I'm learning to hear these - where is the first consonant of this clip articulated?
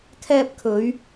velum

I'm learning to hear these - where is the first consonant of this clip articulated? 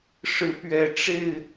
retroflex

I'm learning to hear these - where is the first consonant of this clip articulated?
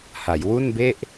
throat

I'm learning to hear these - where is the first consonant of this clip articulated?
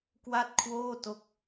velum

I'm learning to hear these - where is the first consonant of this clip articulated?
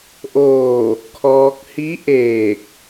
throat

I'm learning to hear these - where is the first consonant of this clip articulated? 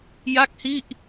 palate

